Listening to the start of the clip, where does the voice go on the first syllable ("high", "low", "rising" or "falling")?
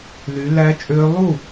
rising